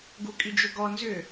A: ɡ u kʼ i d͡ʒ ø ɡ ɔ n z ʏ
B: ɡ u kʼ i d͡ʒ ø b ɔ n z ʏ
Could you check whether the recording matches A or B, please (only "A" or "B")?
A